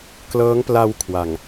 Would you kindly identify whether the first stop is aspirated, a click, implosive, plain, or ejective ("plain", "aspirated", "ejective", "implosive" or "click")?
plain